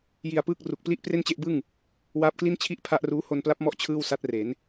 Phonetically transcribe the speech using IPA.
j i˧ a̯ p ɯː˥˩ k̚ r u˨˩ k̚ p l i˥˩ ʔ p r e˥˩ n t͡ɕ e˥˩ ʔ b ɯ˥˩ ŋ | w aː˦˥ p̚ k l i˥˩ n t͡ɕʰ i˥˩ ʔ pʰ a˦˥ ʔ r uː˦˥ h o˧ n p l a˦˥ p̚ m ɔ˦˥ ʔ t͡ɕʰ ɯː˥˩ w s a˦˥ t̚ r e˩˦ n

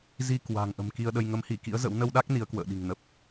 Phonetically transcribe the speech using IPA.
z i˧ k w a̤˨˩ ŋ ʔ ə̤˨˩ m k i˧ ə̯ ɗ ə˧ j ŋ ə˨˦ m h i˧˩ k ḭ˧˥ ə̯ z ə̰˧˥ w n ə˧ w ɗ a˦˥ k̚ n i˨˦ ə̯ k w ə̰ː˧˨ ɗ i̤˨˩ ŋ n ə˨˩ p̚

